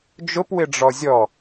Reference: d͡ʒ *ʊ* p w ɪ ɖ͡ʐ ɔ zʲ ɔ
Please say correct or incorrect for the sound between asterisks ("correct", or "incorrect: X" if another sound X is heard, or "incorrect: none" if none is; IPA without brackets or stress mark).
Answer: correct